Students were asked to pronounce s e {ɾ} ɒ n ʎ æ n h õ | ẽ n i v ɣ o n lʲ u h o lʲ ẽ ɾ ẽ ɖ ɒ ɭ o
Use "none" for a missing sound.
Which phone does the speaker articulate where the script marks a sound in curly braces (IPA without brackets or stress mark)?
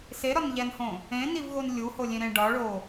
ɾ